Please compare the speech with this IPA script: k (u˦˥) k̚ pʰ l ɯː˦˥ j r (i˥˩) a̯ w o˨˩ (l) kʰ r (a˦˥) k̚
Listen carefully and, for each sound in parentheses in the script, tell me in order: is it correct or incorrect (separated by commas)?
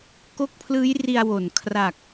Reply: incorrect, incorrect, incorrect, incorrect